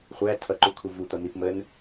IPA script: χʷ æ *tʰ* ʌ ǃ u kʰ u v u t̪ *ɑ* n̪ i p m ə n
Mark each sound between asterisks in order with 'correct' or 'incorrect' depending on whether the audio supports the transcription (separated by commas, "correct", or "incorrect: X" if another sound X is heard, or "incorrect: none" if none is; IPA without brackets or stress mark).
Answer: correct, incorrect: ʌ